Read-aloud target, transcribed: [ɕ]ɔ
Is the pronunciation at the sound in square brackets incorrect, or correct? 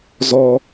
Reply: incorrect